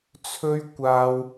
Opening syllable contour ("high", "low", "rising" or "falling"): high